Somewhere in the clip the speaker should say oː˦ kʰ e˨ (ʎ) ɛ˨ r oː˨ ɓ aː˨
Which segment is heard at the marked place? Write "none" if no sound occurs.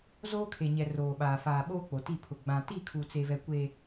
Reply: ɲ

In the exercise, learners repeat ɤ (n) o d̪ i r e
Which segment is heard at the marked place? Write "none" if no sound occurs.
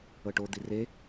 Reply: ʈ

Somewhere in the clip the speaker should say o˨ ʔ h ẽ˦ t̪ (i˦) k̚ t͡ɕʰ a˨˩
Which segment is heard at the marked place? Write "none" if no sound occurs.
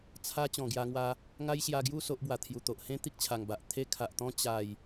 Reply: i˦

